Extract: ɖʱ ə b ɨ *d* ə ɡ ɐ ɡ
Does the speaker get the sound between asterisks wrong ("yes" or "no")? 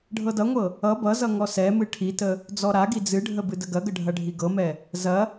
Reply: no